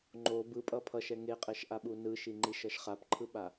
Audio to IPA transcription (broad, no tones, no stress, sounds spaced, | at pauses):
ŋ͡ǃ o b ɯ pʼ ʌ pʰ ʌ ʃ ɛ ŋ e qʼ ɛ ʃ ʔ a ɓ u n ɯ ʃ i ŋ͡ǃ i ʃ ʌ ʃ χ a p ǃʰ ɯ ɓ a